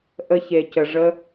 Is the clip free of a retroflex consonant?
no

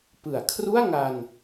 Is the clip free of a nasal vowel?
yes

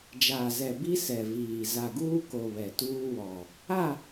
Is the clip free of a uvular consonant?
yes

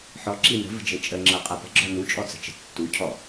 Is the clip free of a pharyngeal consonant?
no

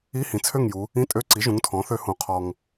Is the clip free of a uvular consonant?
no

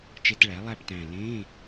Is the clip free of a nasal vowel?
no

